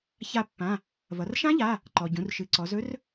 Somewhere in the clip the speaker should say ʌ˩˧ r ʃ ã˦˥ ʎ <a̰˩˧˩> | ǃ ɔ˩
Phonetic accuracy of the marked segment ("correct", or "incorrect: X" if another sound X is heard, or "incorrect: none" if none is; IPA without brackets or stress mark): incorrect: a˩˧˩